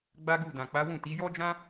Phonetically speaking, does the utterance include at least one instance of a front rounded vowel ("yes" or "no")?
no